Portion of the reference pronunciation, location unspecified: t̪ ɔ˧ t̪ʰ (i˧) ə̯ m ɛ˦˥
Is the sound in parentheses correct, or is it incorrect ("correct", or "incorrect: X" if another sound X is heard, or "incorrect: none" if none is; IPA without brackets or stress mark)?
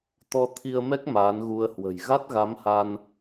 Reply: correct